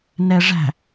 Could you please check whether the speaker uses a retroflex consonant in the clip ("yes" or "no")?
yes